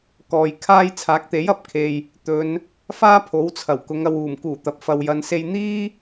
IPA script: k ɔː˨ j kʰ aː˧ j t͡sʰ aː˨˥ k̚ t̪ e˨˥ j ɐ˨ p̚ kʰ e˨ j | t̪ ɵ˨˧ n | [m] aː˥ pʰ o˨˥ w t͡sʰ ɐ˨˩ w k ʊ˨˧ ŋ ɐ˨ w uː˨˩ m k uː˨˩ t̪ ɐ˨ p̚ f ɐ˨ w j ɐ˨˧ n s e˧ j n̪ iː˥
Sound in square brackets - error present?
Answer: yes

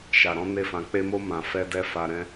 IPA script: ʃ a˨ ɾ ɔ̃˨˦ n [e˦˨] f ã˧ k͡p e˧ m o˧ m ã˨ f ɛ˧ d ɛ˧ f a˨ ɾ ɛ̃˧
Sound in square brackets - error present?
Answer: no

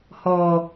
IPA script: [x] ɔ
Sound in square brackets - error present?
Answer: yes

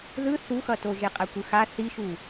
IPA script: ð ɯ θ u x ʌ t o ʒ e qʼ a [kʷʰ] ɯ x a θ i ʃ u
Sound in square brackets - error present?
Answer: yes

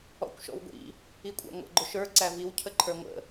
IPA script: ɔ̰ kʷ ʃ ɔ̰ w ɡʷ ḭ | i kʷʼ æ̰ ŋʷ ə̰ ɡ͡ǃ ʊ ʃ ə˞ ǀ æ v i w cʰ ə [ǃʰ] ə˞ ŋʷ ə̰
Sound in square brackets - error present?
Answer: no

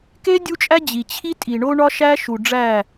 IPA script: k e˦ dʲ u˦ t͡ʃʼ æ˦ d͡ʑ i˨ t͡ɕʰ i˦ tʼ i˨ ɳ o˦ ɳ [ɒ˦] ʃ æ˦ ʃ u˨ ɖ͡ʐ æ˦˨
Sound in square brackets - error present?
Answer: no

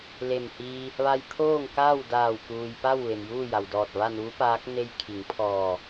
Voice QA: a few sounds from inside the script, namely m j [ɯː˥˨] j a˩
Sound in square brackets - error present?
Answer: yes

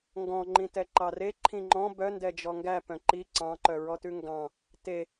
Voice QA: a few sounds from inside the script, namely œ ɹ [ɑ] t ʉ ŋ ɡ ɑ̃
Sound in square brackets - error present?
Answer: yes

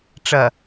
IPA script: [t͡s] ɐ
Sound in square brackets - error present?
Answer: yes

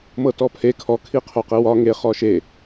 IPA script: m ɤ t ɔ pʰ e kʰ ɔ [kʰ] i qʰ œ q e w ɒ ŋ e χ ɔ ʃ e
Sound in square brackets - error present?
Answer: no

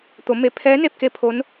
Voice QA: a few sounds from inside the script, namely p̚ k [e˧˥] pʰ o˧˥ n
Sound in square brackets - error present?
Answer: no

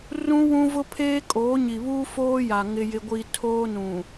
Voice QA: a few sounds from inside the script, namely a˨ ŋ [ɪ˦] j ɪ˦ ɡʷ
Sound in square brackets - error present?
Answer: no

